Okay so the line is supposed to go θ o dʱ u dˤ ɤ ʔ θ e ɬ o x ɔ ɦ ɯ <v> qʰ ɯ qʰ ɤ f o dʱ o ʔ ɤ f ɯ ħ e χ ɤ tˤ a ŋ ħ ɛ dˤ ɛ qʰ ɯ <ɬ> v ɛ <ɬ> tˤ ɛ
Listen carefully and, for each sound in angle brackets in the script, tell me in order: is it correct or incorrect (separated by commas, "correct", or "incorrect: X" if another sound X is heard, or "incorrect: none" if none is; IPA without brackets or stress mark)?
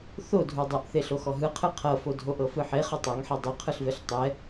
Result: incorrect: none, correct, correct